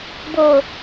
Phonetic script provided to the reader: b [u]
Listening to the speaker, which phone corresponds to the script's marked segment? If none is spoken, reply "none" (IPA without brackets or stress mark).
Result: o